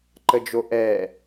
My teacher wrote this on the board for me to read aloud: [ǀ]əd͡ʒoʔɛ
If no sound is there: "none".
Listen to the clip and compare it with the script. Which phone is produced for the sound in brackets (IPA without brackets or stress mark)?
ǃ